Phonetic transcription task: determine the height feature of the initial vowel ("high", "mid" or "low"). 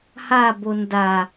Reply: low